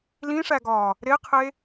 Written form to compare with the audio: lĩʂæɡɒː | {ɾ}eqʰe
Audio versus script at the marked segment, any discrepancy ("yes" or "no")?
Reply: no